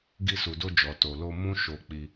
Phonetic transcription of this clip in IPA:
ɡ i˧ s u˨ d o˧ d͡ʒ ɔ˨ t o˨ l o˧ m ũ˦ ʃ o˧ k͡p i˧

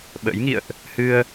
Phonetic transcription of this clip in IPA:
ɓ ə̰ː˧˥ j ŋ ḭ˧˨ ə̯ ʔ | h ɨ˧ ə̯

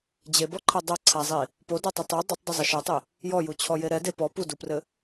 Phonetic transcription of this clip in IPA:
d͡ʑ e b ɔ ǃʰ a dˤ ɐ ǀʰ a zˤ i | p o d o tˤ ɘ tˤ e dˤ ɘ tˤ dˤ ɘ zˤ ɐ ʃ a tˤ e | j ɔ j u t͡ɕʰ ɔ j e ɾ ɛ d e p ɔ p u d u p r ɘ

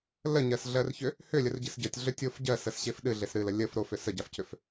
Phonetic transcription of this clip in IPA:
l ə ɲ ɜ s ɮ ɜ r ç ʏ | h ʏ lʲ ə r ɟ ɨ s ɟ ə tʲ ɮ ʏ tʲ o f ɟ ɜ s ə s ɕ e f ɗ ɨ ɮ e s ɾ ɨ l ə lʲ ə f ɾ o f ʏ s ə ɟ a f c ʏ f

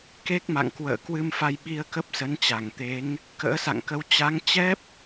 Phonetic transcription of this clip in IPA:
k e˦˥ k̚ m a̰˧˨ ŋ k w ə̰ː˧˨ k w ɨ˧ m f a˧ j ɓ i˧ ə̯ k ə˦˥ p̚ s ə˨˦ n t͡ɕ a˧˩ ŋ t̪ e˨˦ ŋ | k ə̰ː˧˥ s a̰˧˨ ŋ k ə˧ w t͡ɕ a˨˦ ŋ t͡ɕ ɛ˦˥ p̚

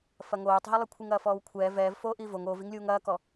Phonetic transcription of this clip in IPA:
f ɐ ŋ oː tˤ ɦ i lˠ i kʷʰ i ŋ ɐː f ɔː w kʷʰ ɛː v ɛː v f oː ʔ iː v o ŋ oː v i ŋ lʲ uː ŋ ɐː k ɔ

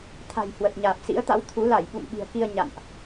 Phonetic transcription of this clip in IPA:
t̪ʰ a̤˨˩ j h w ə˨˩ t̚ ɲ aː˨˩ p̚ s ḭ˧˥ ə̯ t̪ a̰˧˥ w t̪ʰ u˨˦ l a˧˩ j ɓ ṵ˧˨ m ɓ i̤˨˩ ə̯ k i˧ ə̯ ɲ a̰˧˨ n ʔ

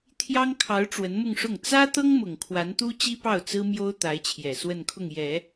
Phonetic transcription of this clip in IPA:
t̪ʰ j ɑ˥ ŋ kʰ ɑ˧˥ ʊ̯ ʈ͡ʂ w ə˧˥ n m ʊ˥˧ ŋ ʂ ʊ˥˩ ŋ t͡s ä˥ t̪ ɤ˥ ŋ m ʊ˨˩ ŋ kʰ w a˧˥ n t̪ u˥ t͡ɕ i˥ p ɑ˥˩ ʊ̯ t͡s ɹ̩˥ m j o˥ ʊ̯ t̪ a˧˥ ɪ̯ t͡ɕʰ j ɛ˨˩ s w ə˥˧ n kʰ ʊ˥˩ ŋ j ɛ˨˩˦

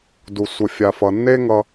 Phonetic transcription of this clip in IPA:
d u˨ sʷ ə˨ fʲ a˨ f ʌ˨ nː e˦ ŋ ʌ˧

